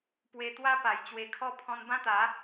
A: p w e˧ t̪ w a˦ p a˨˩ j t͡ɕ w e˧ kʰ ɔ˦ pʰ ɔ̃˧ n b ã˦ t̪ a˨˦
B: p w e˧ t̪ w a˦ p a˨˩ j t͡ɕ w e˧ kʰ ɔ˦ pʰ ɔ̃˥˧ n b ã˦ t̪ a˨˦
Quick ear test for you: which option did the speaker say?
A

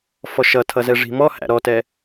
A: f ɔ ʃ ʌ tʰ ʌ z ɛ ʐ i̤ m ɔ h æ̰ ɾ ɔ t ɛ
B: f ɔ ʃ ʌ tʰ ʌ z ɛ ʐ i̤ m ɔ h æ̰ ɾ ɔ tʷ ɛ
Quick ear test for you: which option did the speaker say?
A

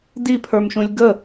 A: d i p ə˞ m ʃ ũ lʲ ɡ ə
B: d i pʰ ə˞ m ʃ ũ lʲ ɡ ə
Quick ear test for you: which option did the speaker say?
B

